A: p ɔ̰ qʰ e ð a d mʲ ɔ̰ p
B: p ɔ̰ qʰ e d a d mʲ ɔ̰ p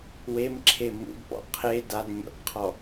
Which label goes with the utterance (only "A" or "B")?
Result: B